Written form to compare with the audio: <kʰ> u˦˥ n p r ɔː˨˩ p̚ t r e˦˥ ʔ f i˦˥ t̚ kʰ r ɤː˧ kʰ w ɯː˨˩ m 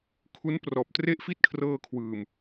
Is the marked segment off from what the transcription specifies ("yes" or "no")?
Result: no